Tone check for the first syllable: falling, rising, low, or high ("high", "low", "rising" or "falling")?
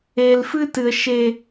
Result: low